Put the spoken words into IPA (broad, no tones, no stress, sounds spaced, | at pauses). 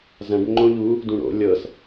z ɐ̃ ɖ ŋ͡ǃ õ ʎ u | d ũ ɽ o̰ lʲ ɤ s